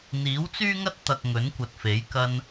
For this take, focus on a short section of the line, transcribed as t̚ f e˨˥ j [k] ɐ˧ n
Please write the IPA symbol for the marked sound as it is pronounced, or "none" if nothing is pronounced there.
k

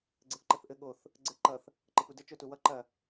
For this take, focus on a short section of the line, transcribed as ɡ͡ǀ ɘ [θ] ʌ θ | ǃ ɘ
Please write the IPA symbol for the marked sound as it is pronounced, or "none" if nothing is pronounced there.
ǃ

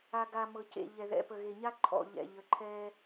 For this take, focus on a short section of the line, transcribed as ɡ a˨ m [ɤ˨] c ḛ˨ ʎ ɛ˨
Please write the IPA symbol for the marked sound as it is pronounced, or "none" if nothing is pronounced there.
ɤ˨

